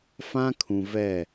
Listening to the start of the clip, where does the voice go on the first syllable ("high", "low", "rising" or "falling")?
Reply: high